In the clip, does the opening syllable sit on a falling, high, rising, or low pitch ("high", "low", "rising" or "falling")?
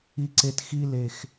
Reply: low